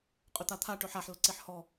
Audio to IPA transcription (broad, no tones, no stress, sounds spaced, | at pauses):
qʼ ʏ t̪ a t̪ʰ a ʈ ɵ ħ a ħ l ə ǀ e ħ h ɔ